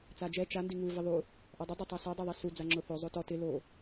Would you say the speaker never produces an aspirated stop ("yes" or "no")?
yes